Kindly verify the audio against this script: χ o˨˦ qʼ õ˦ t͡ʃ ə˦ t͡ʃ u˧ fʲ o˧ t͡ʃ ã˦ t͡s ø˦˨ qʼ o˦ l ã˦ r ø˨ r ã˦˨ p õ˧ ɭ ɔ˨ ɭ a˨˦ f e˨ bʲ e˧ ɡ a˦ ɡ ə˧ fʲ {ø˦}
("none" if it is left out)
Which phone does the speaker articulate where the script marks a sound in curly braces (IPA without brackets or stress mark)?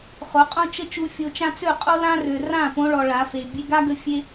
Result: e˦